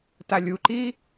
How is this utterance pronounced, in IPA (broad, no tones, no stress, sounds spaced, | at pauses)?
t a lʲ u ǃ iː